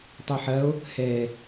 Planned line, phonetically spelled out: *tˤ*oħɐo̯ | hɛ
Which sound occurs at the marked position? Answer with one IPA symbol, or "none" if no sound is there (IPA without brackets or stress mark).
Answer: tˤ